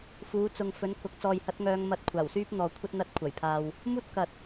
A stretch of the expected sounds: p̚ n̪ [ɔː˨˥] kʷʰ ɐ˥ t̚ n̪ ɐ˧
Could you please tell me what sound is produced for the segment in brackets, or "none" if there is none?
ɔː˨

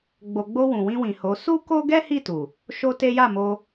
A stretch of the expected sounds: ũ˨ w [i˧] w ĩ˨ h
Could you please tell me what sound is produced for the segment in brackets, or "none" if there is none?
ĩ˧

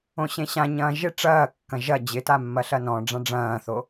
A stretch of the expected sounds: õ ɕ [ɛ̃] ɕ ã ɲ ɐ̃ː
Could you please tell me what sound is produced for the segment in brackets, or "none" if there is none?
ẽ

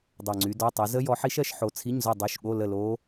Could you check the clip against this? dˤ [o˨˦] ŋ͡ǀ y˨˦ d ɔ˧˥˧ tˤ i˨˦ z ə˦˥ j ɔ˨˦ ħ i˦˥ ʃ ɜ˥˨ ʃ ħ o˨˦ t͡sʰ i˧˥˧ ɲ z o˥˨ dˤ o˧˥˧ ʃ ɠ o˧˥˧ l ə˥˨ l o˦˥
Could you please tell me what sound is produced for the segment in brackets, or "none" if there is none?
o˨˩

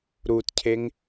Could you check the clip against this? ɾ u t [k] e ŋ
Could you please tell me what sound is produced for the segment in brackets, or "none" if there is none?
cʰ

